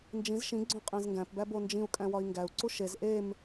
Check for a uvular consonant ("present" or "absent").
present